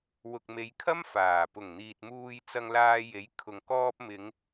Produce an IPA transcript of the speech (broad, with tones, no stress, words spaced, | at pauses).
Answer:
wʊ˨k̚me˨˧jkʰɐ˥m faː˨˩ pʊ˨˩ŋn̪iː˨t̚muː˧j t͡sɐ˧ŋlaː˧ je˨˥jkʰʊ˨ŋ kɔː˧p̚mɪ˨˧ŋ